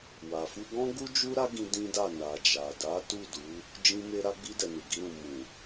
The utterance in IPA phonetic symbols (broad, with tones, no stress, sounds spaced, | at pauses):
w a˨ f u˧ ɡ ɔ̃˦ ɡ u˦ d͡ʒ u˦ ɾ a˦ ɡ ĩ˧ d ĩ˦ d a˦˨ n a˨ d͡ʒ a˨ d a˨˦ t u˦˨ d u˨˦ | d͡ʒ ĩ˧ m e˦ ɾ a˧ ɡ͡b i˧ d ɛ˨ n u˨ ɡ i˧ ɾ ũ˨ m ũ˨